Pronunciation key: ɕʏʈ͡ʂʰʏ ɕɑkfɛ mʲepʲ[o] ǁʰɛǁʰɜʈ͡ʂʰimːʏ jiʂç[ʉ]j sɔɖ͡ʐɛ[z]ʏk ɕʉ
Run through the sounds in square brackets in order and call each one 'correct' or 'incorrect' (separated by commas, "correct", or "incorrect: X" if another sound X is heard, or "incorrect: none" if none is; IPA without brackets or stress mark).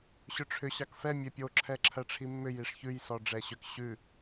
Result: correct, correct, incorrect: ɕ